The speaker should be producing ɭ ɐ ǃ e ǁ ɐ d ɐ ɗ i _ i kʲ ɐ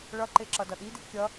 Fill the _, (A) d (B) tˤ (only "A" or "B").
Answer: A